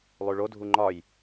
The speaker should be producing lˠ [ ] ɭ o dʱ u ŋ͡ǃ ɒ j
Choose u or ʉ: ʉ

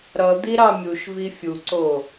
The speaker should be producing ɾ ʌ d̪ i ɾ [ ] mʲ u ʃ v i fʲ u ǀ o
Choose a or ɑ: ɑ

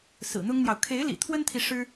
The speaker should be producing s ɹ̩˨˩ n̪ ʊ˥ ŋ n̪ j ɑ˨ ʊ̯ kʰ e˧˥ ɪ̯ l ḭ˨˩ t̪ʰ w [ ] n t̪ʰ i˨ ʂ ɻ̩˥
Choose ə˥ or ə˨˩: ə˥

